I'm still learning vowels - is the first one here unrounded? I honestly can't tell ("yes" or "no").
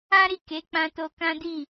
yes